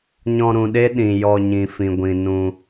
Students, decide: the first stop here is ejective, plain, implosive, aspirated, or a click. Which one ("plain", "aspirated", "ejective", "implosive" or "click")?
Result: implosive